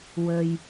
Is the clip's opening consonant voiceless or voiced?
voiced